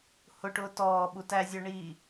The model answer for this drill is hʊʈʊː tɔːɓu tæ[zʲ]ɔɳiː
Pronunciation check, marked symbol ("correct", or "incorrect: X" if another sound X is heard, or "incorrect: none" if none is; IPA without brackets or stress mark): correct